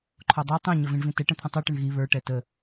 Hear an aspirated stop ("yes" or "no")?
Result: yes